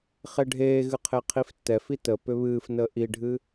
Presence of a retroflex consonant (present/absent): present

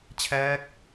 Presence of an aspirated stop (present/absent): present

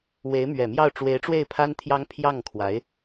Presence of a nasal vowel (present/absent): absent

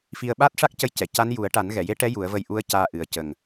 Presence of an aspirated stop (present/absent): absent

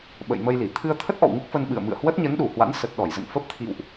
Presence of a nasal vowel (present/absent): absent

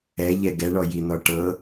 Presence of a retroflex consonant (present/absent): present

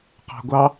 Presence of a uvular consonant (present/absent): present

